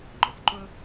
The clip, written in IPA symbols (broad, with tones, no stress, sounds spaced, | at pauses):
ŋ͡ǃ ʊ˩˥ xʷ ǃ ʊ˥